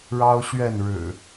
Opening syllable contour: high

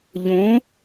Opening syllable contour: rising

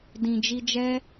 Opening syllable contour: low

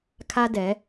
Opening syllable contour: high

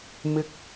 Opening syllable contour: high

